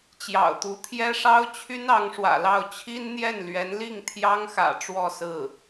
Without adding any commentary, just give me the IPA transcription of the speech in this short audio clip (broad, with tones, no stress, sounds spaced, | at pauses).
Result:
t͡ɕ j ɑ̰˨˩ ʊ̯ t̪ u˧˥ t̪ʰ j ɛ˥ ʂ ɑ˥ ʊ̯ t͡ɕʰ y˥ n ɑ˧˥ ŋ ʂ w ä̰˨˩ l ɑ˥˩ ʊ̯ t͡ɕʰ i˥ n n̪ j ɛ˥˩ n l ɥ ɛ˧˥ n l i˥˩ ŋ t̪ʰ j ɑ˥ ŋ x ä̰˨˩ ʈ͡ʂ w ɔ˥˧ s ɹ̩˥˩